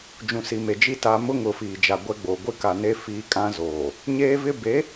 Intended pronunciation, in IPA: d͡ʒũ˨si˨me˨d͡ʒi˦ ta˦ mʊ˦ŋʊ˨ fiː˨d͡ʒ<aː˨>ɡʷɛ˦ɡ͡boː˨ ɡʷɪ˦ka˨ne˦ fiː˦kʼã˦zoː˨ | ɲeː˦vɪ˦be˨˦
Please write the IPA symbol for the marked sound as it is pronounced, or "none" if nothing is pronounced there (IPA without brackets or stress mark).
a˨